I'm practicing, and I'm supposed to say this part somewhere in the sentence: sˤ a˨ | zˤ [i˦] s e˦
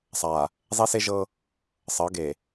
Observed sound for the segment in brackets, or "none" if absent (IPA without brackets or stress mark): i˦